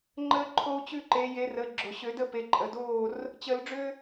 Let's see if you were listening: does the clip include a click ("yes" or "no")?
yes